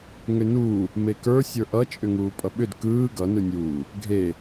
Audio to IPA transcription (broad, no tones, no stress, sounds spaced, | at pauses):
ŋ ʏ n uː | m e k ə˞ sʲ ə˞ ʔ ʌ t͡ʃʼ ʏ ŋ uː pʼ ʌ ɓ ʏ d k ɯː ɡ ʌ n ɯ nʲ uː | ɡʱ e